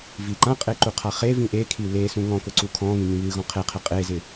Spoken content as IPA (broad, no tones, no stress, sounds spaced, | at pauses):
v i ǃ ã qʼ e ǃ u qʰ a χ e v ĩ ʔ e kʰ i l e s ũ ŋ ɔ̃ k ʊ ǀ u kʰ ɔ̃ β ĩ ŋ ĩ β ɨ ɣ ɔ̃ qʰ e qʰ ɪ qʼ e z ɪ